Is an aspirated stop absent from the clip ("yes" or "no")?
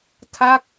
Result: no